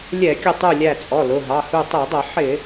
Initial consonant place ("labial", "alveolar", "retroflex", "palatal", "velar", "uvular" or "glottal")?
alveolar